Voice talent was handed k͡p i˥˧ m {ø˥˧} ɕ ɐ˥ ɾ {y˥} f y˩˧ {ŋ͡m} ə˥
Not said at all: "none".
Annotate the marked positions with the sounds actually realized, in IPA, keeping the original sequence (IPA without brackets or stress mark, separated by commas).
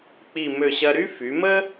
ø˥˧, y˥, m